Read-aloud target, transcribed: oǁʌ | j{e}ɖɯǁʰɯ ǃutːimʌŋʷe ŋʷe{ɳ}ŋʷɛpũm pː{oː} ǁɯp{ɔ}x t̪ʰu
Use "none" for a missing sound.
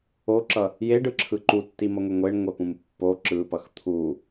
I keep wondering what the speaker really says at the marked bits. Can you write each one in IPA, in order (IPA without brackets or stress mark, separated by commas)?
e, ɳ, o, ʌ